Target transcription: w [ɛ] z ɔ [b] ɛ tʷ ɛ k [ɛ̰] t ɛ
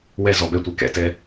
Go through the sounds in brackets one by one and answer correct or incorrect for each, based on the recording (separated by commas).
correct, correct, correct